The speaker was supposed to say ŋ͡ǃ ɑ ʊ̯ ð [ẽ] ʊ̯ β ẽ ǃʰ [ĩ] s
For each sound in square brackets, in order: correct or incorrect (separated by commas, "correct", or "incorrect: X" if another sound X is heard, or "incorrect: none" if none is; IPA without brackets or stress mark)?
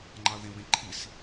correct, incorrect: i